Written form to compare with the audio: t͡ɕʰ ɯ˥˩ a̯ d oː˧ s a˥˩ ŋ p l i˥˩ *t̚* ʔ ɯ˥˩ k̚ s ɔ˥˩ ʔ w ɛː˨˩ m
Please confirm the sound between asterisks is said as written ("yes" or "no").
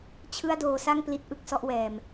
yes